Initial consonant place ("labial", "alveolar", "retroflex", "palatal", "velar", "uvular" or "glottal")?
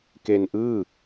velar